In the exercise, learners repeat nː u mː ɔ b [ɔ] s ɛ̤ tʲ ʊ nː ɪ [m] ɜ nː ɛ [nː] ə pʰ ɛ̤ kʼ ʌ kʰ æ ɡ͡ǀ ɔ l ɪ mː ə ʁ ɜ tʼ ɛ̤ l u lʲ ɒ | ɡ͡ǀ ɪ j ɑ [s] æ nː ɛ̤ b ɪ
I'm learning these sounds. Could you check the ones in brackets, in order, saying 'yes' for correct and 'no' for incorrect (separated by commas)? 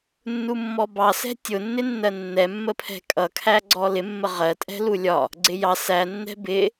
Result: no, no, no, yes